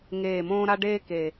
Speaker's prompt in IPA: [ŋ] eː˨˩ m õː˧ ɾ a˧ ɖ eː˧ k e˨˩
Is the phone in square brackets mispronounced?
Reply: no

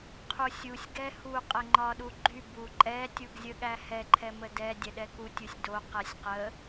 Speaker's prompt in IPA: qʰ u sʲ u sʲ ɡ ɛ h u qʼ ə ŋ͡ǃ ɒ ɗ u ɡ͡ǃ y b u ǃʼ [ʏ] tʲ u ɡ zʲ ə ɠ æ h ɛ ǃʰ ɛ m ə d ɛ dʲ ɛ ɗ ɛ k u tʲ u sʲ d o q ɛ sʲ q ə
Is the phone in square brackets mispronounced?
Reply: yes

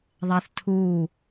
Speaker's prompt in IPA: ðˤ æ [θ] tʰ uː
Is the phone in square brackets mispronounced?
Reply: no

